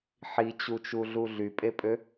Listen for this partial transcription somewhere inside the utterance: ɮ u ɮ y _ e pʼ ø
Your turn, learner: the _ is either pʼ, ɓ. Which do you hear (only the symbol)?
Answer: pʼ